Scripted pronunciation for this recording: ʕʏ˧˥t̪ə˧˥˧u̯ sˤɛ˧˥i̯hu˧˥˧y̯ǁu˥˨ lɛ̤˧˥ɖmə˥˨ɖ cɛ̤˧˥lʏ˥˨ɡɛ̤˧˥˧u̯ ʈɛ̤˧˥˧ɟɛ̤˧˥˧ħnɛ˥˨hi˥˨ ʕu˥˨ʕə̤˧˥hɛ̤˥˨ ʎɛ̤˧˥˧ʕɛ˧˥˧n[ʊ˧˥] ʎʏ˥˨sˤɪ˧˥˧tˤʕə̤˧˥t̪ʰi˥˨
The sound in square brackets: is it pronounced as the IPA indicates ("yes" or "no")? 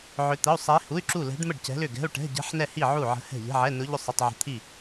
yes